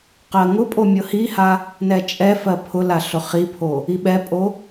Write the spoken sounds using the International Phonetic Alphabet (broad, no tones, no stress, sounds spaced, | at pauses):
q ɜ ŋ ʊ pʼ o mʲ ɤ h i h a | n ɛ t͡ʃʼ ɛ f ɜ pʰ ʊ l a ɬ ʊ χ i pʰ o | i ɓ ɛ pʼ o